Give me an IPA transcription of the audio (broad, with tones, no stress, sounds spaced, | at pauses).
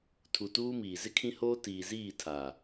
tʰ u˨ t uː˦ m iː˨ z ɪ˦ kʰ ĩ˦ h oː˦ t iː˨ z iː˦˨ tʰ a˨